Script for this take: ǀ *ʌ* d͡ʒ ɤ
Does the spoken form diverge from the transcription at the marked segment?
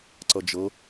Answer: no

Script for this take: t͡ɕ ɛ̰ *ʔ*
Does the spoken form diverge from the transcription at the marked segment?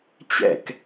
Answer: yes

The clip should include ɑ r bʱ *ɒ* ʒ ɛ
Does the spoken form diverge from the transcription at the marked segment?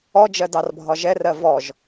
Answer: no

